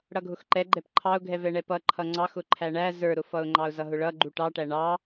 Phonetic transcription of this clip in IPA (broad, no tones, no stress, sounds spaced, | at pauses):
ɽ ʌ ɡʱ ʊ x ǃ ɛ ɡ͡ǃ ɛ p ǃʰ ɑ ʊ̯ ɡʱ ɛ v ɛ ɳ ɛ p ʌ ǃʰ ʌ ŋ͡ǀ ɑ x ʊ ǃʰ æ ɳ æ z ə˞ ɾ ʊ f ʌ ʊ̯ ŋ͡ǃ ɑ ʊ̯ z ʌ ɦ ʊ ɭ ʌ ɡ͡ǃ u ʈ ɑ ʈ æ ɳ ɑ